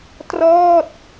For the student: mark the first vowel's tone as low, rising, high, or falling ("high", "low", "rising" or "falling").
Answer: falling